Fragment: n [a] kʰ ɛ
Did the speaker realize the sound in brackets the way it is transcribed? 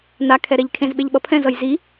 yes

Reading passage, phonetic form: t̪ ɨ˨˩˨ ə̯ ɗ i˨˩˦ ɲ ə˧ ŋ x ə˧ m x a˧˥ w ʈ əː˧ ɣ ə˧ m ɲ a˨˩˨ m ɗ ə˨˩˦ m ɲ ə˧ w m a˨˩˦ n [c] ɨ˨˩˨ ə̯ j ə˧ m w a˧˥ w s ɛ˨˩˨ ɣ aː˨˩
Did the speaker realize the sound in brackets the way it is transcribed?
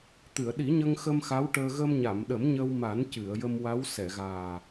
yes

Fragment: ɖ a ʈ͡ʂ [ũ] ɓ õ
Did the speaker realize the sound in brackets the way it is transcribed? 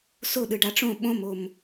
no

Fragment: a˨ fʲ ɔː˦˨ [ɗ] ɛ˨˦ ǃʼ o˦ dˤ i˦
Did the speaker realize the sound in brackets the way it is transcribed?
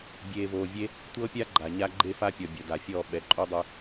no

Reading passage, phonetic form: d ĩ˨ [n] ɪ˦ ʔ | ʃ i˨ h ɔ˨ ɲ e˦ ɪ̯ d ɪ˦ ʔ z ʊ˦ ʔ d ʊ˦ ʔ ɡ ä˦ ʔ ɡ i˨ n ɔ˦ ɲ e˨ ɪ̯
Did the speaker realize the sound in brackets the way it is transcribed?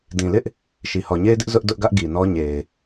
no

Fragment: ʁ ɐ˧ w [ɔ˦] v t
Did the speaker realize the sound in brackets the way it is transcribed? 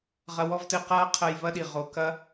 yes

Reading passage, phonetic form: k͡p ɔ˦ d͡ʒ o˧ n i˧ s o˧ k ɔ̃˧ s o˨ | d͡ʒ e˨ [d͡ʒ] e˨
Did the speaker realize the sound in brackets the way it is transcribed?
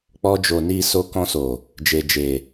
yes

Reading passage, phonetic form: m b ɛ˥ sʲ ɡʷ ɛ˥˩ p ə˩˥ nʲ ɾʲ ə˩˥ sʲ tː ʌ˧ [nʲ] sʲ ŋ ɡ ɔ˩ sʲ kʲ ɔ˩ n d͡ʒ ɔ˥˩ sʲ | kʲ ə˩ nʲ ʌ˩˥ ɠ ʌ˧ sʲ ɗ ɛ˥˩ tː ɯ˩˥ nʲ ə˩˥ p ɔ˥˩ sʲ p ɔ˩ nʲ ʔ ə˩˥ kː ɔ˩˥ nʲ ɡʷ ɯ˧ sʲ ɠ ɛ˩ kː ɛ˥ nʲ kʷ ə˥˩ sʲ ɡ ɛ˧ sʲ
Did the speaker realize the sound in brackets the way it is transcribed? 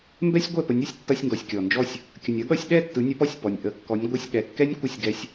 no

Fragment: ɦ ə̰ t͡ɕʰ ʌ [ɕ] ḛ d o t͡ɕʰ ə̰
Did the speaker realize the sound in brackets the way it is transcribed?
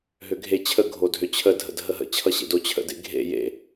yes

